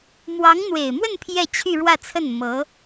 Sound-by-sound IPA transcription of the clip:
m w ɑ˧˥ ŋ n̪ w e˨˩ ɪ̯ m w ə˥˧ n pʰ j ɛ˥˧ t͡ɕʰ y˥˧ ɻ w ä˥˧ t͡sʰ ə˥˩ n m ɤ˧˥

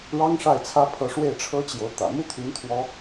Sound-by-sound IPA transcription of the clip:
ɻ ɑ˥ ŋ ʂ a˥˩ ɪ̯ t͡sʰ ä˥ pʰ ɤ˧˥ ʂ w e˥˩ ɪ̯ ʈ͡ʂʰ ɤ˥ t͡ɕ j o˧˥ ʊ̯ t̪ ä̰˨˩ m u˥ t̪ʰ y˧˥ n t̪ʰ w ɔ˥

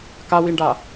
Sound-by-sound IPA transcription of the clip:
k a w i ɳ ɖ a

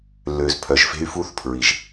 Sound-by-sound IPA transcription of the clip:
lː ø˨ z pʰ œ˨ ʒ f e̤˦ y̯ f u˦ θ pʰ ɹ i˨ ʒ

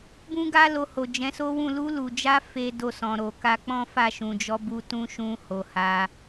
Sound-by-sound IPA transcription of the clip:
b ũ˦ ɡ a˦ l o˧ h o˨ d͡ʒ ɛ̃˨˦ s o˦ w ũ˦˨ l u˧ l u˨ d͡ʒ a˧ f e˦ d o˦˨ s ɔ̃˨ ɾ o˨ k a˧ k͡p ɔ̃˦ f a˦˨ ʃ ũ˨ d͡ʒ ɔ˨˦ b u˧ t ũ˦ ʃ ũ˧ h o˨ h a˧

